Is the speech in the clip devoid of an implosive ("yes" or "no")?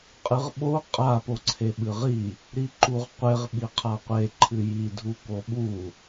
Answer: no